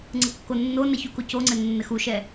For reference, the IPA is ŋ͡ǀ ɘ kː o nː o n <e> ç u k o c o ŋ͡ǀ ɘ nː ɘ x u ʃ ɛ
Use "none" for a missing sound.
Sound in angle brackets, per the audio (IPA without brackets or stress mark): ɛ